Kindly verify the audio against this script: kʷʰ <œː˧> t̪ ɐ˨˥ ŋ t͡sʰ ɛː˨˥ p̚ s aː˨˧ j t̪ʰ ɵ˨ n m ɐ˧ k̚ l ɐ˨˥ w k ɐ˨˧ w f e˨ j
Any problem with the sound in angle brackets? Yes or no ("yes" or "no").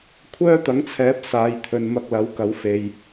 yes